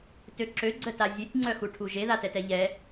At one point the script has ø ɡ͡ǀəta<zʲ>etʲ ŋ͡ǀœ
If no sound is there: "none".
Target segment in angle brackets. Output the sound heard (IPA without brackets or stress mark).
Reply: zʲ